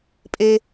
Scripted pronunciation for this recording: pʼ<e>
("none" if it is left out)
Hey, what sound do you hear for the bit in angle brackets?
e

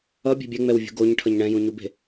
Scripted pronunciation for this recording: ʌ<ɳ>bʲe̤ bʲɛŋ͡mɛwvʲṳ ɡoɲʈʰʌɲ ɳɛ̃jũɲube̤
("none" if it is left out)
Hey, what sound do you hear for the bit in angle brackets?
none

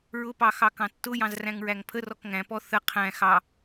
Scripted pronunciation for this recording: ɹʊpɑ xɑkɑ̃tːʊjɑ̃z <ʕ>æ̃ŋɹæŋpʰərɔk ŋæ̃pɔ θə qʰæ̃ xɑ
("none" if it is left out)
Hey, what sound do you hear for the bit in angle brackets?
r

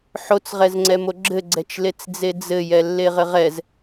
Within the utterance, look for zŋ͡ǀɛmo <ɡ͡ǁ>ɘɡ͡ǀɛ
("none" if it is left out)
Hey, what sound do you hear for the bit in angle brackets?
ɡ͡ǁ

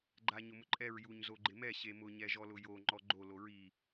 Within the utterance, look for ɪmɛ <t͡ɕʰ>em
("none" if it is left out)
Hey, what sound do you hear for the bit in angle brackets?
ɕ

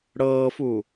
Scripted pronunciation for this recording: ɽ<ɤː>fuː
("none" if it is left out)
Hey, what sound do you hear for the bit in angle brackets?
ɤː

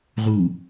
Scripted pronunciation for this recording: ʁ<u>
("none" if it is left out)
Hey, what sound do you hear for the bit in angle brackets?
u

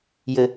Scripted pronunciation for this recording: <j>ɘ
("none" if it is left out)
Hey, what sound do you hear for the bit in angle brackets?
j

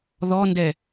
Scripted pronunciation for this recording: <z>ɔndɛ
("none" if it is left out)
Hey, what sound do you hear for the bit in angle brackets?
ð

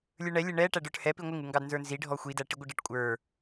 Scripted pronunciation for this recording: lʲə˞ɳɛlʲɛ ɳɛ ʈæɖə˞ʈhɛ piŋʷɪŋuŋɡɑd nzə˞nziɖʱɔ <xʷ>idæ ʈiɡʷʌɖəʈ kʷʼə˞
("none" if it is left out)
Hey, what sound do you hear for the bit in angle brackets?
xʷ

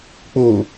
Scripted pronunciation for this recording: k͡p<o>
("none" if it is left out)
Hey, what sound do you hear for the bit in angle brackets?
o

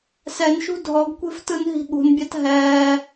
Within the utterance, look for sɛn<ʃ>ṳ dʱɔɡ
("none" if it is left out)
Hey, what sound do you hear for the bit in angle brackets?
ʃ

